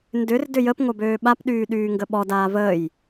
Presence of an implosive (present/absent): present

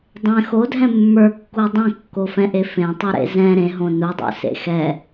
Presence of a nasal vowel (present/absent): present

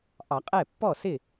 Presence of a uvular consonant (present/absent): present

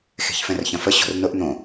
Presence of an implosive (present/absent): absent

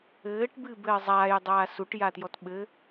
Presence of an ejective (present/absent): absent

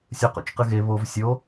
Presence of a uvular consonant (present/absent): present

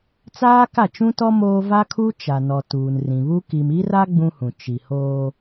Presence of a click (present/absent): absent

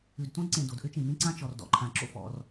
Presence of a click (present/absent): present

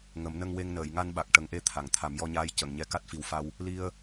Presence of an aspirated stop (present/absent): present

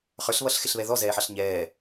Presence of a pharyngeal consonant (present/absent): present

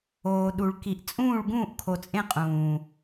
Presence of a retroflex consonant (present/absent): present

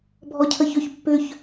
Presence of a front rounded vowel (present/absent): present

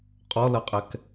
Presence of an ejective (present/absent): present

